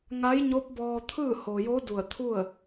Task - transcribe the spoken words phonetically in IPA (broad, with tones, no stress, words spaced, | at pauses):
ŋa˧˥jɲo˧˥p̚ bɔː˧t̪ʰɯː˥˨ ho˩jo˧˥ du˧˩ə̯t̪ʰu˥˨ə̯